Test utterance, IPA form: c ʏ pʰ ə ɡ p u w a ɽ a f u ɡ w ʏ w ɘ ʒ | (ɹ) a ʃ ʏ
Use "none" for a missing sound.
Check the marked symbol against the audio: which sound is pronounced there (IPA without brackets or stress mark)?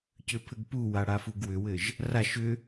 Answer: r